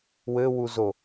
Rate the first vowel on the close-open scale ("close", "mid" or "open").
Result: mid